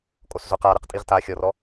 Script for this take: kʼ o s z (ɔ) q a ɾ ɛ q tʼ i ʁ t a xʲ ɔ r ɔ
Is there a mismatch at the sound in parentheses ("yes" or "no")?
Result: yes